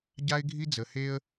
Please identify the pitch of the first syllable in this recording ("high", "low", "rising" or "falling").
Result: high